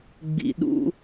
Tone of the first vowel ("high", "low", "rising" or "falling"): low